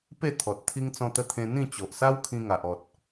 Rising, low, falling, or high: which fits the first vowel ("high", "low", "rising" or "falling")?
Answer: falling